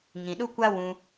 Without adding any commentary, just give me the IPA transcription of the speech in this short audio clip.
ŋ ĩ˨ ɗ u˦ kʷ a˦ w ũ˧

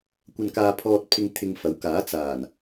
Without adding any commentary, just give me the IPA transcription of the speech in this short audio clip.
kʷ ɐ˧ n k aː˧ pʰ ɔː˧ t̚ pʰ ɪ˧ ŋ t̪ʰ ɪ˧ ŋ f ɐ˨˥ w k aː˨˥ t͡s aː˨˩ n

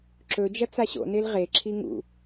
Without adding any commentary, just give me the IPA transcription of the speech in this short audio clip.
ǁ ɵ d͡ʒ ɐ t͡s a ɕ o̰ n e l ʁ e ǁʰ i ŋ ṵ

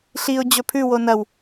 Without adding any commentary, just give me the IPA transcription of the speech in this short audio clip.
ɬ i ʊ̯ d͡ʑ ɵ pʰ ʉ w o n ɐ w

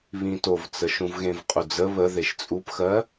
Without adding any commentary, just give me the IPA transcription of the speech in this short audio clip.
β ĩ t o v t͡s ə ʃ ũ v ɣ ẽ v qʼ u d͡z ə β ə ð e ʃ t͡sʼ u p x ɜ

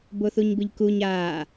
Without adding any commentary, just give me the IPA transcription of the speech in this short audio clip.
b o θ u ɲ b ɯ ʎ k u ɲ aː

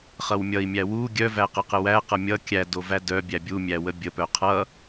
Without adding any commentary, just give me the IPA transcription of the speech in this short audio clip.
χ ʌ w mʲ ʌ i̯ mʲ æ w u ɡʲ œ v æ q ə q ə w æ q ʌ mʲ ʌ kʲ æ d o v æ d œ bʲ æ bʲ u mʲ æ w ə bʲ ə p œ qʰ ʌ

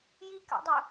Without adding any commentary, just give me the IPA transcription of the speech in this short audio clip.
j i k a̰ dˤ ʊ

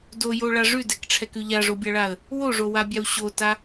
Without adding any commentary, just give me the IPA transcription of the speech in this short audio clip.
d o j o ɭ a ʐ ʉ d ɛ k ʈ͡ʂʰ ɛ k ʉ ʎ a ʐ o bʲ a ɭ a ə̯ | w o ʐ o w a bʲ a w ɕ o t a

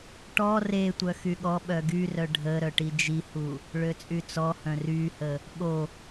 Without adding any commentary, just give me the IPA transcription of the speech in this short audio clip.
ʈ ɔ r e tʷ œ x y ɠ ɔ ɓ œ ɡ y r œ ɖʱ ə ɾ œ ʈ i d͡ʒ i h u | ɭ ø t͡sʼ y t͡s ɔ h œ̃ r y h ə | ɠ o

